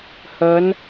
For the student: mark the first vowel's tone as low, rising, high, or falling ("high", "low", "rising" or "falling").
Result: rising